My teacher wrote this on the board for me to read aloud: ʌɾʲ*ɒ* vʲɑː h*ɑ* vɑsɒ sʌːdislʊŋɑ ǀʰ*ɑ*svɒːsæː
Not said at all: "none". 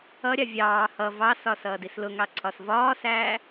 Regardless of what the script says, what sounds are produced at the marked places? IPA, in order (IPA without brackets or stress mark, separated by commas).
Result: ɑ, ʌ, ɒ